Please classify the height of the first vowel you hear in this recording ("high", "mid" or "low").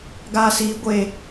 low